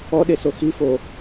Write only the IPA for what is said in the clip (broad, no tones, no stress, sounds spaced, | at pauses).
ɔ ɗ e s o x i f o